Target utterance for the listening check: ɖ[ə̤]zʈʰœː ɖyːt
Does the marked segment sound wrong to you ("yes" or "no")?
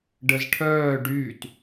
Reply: yes